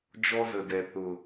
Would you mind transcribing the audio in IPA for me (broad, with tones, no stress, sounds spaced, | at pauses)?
d͡ʒ ɔ˦ z ə˨ d ɛ˨ θ ʊ˨